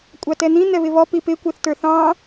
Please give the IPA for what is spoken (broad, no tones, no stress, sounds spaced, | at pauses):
kʷʼ ɑ t ɛ n̪ ĩ n̪ ɛ β ɪ β ɔ p i p ɪ kʷ ɛ θ t ə˞ θ ɑ̃